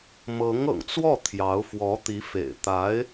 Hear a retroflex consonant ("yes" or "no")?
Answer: no